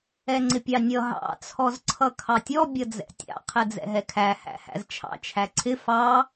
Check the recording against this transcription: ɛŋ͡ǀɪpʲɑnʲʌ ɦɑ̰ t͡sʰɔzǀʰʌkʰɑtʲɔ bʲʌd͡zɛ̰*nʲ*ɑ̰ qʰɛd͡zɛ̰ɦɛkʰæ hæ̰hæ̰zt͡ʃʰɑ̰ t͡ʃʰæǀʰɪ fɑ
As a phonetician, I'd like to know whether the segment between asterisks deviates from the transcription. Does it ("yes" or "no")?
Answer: yes